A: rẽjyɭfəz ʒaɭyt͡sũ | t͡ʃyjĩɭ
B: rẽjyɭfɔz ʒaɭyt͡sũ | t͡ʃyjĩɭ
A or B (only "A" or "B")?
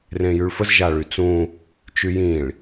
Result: A